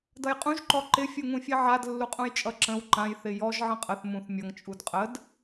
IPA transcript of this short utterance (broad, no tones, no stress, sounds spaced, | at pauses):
d ʌ j qʼ ũ ʒ ǃ ɔ ǃ ɪ fʲ u ŋ ũ fʲ e ʕ a d lː u qʼ ũ j t͡ʃʼ ʌ ǁ ə̃ w ǃ ã j θ ɪ j ɔ ʒ ʕ ə̃ qʼ ə θ m ũ θ mʲ ʌ ŋ t͡ʃʼ u d qʼ ə d